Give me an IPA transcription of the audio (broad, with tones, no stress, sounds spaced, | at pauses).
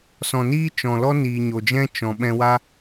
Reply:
s ɔ̃˨ n iː˦ t͡ʃ ɔ̃˨ l ɔ˦ n iː˨ ɲ o˨ d͡ʒ ɛ̃˦ t͡ʃ ɔ̃˨ ɓ ɛ̃˧ w a˦